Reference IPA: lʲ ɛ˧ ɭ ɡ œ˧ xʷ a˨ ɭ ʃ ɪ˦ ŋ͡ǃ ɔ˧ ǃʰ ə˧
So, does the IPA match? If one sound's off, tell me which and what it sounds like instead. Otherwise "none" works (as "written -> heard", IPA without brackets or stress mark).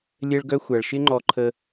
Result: none